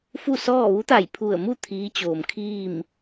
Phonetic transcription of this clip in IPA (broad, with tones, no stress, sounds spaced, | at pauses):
f u˥˨ s ɔː˥˨ ʋ u˧˥ t̪ a˧˩ j pʰ u˧˩ ə̯ m u˥˨ t̪ʰ iː˧˥ t͡ɕ oː˩ m kʰ iː˥˨ m